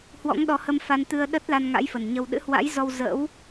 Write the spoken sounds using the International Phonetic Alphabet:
hwɔ̰˧˥ŋɗɔ˨˦hə˧mfa˧n t̪ɨ˧ə̯ɗə˦˥t̚la˧n ŋa̰˧˥jfə˨˩nɲə˧w ɗɨ̰˧˥hwa̰˧˥jzɔ˧w zə̰˧˥w

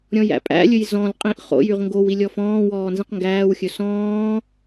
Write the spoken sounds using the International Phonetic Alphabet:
ɾʲɔ̃jæ̰pʼæ̰lʲɵj zɔ̃lqʼĩʔ χo̰jyʁ ŋɡow ilʲɔfɔ̃ːwɔː nzĩqŋɡæːwxʲɵ sɔ̃ː

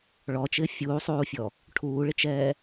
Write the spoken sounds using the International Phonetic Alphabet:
ɭɔt͡ʃɪː fʲuːsˤuːfʲɔ | ʈʰuːɭɪt͡ʃɛː

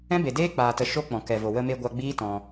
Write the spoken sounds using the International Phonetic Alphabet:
ɛ̃˦be˨deː˦ k͡paː˨tə˨ ʃo˦k͡pɔ̃˨ kɛ˨vo˨ wə˧ me˧ɡʷa˧ɡ͡biː˦ tɔ̃˧

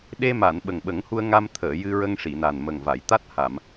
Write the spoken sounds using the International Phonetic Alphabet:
ɗe˧ma˨˩˨n ɓə˨˩ŋɓə˨˩˦ŋhu˧ə̯ ŋa˧mt̪ʰəː˨˩˨ jɨ˧ɹə˧ŋ ʂi˨˩˨na˨˩nmə˨˩ŋva˨˩˨j t̪a˦˥t̚ha˨˩˨m

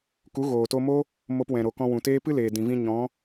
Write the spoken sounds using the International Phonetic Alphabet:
ku˨˦ɣoː˨to˧mo˦ | mo˧p wɛ̃˨ɾo˨ kɔ̃˧wũ˨teː˦ pɨ˦ leː˨dĩ˨vĩ˧ ɲɔ̃˨˦

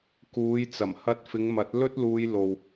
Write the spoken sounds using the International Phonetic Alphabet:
kuː˨˧jt͡sɐ˨˩mhɐ˧t̚ fɪ˨˧ŋmɐ˨˥t̚lɵ˥t̚luː˧j lo˨w

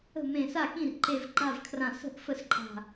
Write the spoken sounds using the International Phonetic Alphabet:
ə̤˥˩mẽ˧˩sa˥˩ kĩ˥˩rǃe˧˩v ɡ͡ǃa˥˩vkʰrã˧˩ sə̤˥˩ʔ fə˥˩sǃʼa̤˧˩

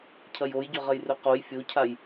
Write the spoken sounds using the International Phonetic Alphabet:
cʰɐjojɟɵʁɐj rɵqoj fʲocʰaj

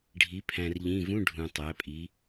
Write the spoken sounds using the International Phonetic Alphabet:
ɖʱi˩˧ pʰæ̃˩rʎĩ˩˧˩vũ˧˥˧ ɖʱũ˩ tˤæ˩˧pʼi˩˧

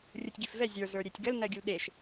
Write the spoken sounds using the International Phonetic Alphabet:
rʲutʲɡifvɛ zʲə˞ zə˞ɾʲetʲɡəl nɜɡʲulɗeʃ

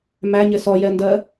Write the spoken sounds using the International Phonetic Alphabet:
mæɲɪ sɔjɛndɜ

